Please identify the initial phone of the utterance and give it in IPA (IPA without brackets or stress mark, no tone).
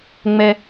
ŋ͡m